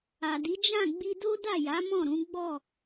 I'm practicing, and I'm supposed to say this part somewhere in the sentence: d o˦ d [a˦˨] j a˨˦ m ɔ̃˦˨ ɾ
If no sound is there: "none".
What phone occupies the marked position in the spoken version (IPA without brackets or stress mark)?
a˦˨